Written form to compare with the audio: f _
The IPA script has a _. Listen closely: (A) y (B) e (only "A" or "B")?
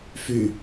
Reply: A